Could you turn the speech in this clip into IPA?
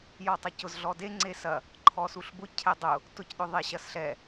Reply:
j ɔ tˤ ɐ c ʊ z ɮ ɔ d e ŋ͡ǀ e s ɐ | ǃʰ ɔ s u ɬ b ʊ cʰ ɛ dˤ ʊ | t ʊ c ɗ ʊ ðˤ e ɕ ɐ s ɬ ɛ

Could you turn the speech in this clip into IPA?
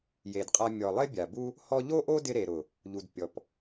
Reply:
j e˨ d qʼ a˧ mʲ ɔ˨ lˠ ɪ˦ bʲ a˨ b u˦ | h ɔ˧ ʎ o˦ ʔ o˦ d ɪ˧ ɾ e˨ ɾ ʊ˨ | ʎ u˨ d pʲ ɔ˨ p

